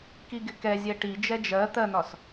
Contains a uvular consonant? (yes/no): no